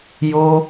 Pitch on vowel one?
high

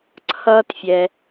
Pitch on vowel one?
high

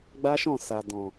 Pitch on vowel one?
high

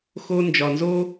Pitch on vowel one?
high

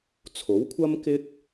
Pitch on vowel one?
rising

